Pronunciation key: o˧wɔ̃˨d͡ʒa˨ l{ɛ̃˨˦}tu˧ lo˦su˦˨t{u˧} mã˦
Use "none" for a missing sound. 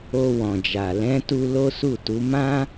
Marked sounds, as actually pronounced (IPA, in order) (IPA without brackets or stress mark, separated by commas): ɛ̃˨˦, u˨˦